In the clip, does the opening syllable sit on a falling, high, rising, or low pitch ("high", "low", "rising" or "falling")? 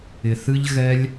low